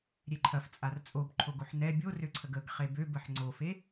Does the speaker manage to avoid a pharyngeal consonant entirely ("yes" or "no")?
no